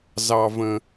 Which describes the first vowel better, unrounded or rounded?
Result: unrounded